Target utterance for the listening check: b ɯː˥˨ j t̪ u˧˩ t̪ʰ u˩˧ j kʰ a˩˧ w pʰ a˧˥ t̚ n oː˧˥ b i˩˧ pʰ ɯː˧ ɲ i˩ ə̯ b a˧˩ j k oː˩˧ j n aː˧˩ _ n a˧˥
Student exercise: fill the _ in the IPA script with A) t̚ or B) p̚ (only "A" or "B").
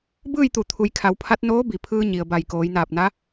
B